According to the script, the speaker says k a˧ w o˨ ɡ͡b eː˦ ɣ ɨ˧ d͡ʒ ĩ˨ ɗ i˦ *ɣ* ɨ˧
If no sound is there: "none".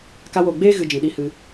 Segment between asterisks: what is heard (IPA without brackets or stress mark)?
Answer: h